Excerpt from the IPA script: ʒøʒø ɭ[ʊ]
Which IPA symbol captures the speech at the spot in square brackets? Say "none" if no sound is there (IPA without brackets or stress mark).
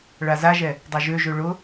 ʊ